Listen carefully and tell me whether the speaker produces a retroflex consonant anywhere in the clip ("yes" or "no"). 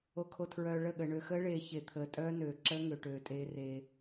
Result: yes